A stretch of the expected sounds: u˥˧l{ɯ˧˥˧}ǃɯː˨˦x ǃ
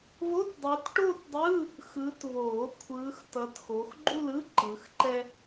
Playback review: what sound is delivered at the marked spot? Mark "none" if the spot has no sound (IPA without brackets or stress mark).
ɯ˧˥˧